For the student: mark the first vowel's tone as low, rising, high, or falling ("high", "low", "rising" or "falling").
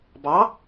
rising